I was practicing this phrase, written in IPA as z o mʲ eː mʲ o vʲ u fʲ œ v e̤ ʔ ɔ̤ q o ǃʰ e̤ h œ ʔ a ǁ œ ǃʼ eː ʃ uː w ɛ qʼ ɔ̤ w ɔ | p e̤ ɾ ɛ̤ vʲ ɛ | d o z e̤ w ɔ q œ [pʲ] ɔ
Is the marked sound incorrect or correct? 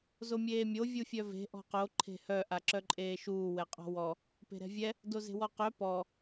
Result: incorrect